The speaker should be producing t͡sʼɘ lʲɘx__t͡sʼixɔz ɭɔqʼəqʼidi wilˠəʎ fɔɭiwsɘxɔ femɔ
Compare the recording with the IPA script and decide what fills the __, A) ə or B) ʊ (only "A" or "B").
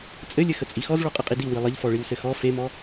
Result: A